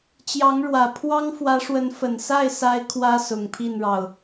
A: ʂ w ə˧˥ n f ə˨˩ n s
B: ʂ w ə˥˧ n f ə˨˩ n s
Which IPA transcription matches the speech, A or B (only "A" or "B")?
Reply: A